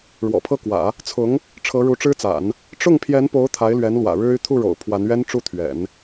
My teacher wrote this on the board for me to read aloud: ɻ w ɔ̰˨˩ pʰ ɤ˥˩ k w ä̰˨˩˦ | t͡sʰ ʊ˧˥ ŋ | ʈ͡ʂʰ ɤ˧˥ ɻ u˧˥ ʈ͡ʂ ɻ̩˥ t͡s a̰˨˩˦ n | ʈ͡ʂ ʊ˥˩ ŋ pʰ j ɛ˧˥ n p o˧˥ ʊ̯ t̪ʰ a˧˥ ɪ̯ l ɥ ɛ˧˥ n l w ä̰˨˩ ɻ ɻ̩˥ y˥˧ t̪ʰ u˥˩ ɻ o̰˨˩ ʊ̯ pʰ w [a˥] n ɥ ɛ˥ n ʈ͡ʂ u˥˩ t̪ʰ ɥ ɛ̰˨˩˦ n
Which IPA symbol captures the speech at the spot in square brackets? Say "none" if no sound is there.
a˧˥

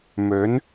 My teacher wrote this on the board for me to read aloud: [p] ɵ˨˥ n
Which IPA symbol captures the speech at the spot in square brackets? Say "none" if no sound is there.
m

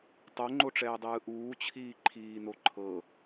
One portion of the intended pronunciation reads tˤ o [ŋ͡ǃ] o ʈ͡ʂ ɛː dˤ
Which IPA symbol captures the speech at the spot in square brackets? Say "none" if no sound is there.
ŋ͡ǃ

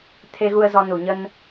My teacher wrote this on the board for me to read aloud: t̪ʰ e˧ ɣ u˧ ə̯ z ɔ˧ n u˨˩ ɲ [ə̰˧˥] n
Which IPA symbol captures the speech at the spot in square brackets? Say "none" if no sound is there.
ə˧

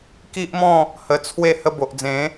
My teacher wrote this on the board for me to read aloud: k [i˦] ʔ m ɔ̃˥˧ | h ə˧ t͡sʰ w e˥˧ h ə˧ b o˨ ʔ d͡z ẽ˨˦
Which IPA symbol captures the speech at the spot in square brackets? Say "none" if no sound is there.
i˦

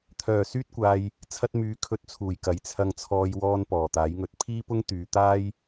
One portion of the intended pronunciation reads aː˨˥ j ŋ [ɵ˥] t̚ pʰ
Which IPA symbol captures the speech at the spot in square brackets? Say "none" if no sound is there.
ɵ˨˥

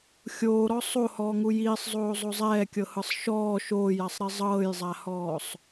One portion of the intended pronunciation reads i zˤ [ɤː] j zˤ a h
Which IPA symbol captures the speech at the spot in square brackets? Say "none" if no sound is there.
ɤː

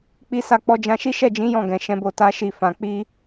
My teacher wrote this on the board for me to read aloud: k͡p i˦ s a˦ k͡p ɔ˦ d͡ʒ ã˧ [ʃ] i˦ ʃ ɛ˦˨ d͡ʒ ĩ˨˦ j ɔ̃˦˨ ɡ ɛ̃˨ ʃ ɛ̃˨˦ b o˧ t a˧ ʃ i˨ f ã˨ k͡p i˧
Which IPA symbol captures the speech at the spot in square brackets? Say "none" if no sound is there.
ʃ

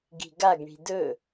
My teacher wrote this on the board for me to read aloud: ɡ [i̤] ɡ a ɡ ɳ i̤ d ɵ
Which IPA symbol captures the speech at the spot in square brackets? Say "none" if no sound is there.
i̤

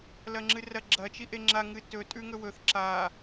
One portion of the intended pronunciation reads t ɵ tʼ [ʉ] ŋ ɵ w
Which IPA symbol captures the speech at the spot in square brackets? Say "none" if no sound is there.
ʉ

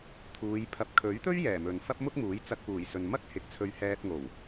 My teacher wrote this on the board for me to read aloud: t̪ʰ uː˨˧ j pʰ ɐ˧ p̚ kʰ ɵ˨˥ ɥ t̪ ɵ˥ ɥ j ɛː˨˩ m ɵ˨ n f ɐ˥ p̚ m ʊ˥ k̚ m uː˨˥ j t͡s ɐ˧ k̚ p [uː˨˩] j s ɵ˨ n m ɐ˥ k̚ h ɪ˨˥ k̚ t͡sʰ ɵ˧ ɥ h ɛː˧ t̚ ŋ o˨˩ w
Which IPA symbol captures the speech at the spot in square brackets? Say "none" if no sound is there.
uː˨˩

